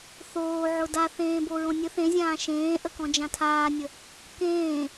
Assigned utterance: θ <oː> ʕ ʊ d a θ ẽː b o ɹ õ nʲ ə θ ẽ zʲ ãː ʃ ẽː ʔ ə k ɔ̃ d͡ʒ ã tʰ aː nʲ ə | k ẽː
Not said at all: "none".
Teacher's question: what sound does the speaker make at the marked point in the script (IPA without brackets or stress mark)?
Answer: oː